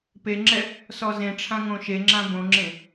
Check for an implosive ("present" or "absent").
absent